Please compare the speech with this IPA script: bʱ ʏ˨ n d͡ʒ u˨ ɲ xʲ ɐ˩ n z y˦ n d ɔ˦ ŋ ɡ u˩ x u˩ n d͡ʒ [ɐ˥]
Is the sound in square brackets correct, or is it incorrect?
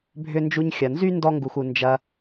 incorrect